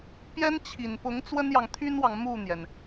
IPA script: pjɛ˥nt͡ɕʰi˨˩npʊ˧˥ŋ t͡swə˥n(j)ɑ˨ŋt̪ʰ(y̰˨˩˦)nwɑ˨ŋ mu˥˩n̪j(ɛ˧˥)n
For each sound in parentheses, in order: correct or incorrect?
correct, incorrect, incorrect

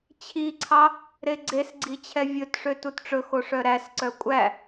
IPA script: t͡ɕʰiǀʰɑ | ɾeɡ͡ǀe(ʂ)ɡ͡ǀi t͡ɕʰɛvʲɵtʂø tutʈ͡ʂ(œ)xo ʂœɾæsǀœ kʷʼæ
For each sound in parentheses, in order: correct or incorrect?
incorrect, incorrect

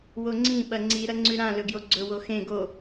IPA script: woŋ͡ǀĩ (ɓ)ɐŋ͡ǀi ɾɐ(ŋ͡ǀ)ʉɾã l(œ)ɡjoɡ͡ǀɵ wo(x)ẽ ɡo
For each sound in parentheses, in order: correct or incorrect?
correct, correct, incorrect, correct

